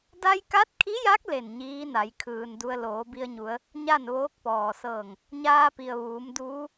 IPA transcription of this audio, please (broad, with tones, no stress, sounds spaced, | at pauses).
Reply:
d a˧ j k a˧˥ t̚ kʰ i˧˥ j a˧˥ k̚ l e˧˩ n ɲ iː˧˥ n a˩˧ j kʰ ɯː˩ n d u˧ ə̯ l oː˩˧ b i˧ ə̯ ɲ u˩˧ ə̯ | ɲ a˥˨ n ʋ oː˧˥ k̚ p ɔː˩ s ɤː˧˩ ŋ | ɲ aː˧ p i˩ ə̯ ʋ uː˩˧ m d uː˧˥